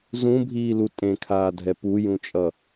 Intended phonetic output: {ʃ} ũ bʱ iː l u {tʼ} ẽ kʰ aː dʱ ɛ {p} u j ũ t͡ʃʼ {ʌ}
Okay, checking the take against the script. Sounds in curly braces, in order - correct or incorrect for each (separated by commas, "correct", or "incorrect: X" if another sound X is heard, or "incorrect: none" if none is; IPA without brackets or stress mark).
incorrect: z, correct, correct, correct